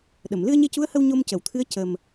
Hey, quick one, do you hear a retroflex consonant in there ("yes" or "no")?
no